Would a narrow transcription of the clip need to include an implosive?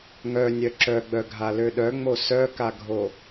yes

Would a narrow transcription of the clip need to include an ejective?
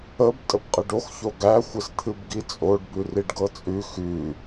yes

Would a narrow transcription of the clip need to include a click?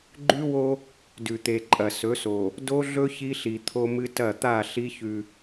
yes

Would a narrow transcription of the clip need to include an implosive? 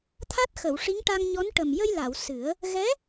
no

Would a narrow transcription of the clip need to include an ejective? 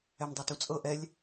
yes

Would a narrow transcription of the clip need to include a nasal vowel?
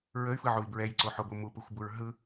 no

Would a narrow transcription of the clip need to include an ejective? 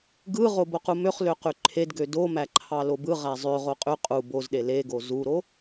yes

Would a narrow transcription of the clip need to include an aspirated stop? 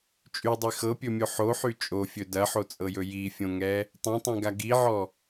no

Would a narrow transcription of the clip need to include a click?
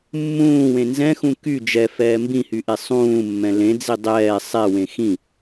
no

